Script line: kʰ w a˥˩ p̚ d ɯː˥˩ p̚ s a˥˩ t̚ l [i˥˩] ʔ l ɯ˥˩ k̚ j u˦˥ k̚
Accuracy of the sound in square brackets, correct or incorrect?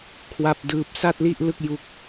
correct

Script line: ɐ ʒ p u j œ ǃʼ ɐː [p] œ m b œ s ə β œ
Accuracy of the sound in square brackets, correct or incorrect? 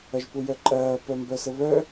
correct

